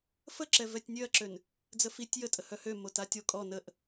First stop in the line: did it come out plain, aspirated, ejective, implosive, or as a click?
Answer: click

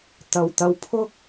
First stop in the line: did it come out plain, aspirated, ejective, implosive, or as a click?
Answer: plain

